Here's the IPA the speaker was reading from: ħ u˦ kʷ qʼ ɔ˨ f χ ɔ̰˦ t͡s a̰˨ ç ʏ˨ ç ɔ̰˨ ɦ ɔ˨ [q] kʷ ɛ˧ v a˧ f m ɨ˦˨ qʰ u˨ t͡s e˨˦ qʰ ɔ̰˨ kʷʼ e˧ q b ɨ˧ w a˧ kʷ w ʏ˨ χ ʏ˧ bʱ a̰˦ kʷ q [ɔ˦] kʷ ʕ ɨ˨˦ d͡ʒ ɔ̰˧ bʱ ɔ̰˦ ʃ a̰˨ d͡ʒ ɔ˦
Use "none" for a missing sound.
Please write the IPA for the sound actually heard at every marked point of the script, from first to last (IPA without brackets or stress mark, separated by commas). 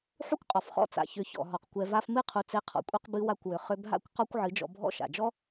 q, ɔ˦